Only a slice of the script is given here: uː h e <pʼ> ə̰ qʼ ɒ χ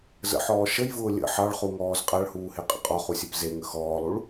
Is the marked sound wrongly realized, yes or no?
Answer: yes